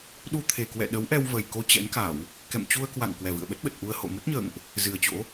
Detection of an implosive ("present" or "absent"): present